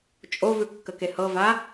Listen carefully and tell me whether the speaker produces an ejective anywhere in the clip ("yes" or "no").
yes